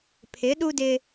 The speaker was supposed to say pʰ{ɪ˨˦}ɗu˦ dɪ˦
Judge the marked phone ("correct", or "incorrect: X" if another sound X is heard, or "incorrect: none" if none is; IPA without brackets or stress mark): correct